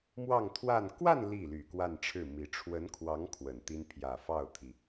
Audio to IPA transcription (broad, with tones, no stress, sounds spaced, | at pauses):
m w ɑ˥˧ ŋ t̪ʰ w a˥˧ n k w a˥˧ n l i˥˩ l y˨˩ k w a˥˧ n ʈ͡ʂʰ ɻ̩˥˩ m i˧˥ ʈ͡ʂʰ w ə˧˥ n kʰ w ɑ˧˥ ŋ kʰ w ə˨˩ n t̪ i˥ n pʰ j ä˨˩ f ɑ˥˩ ʊ̯ t̪ʰ i˩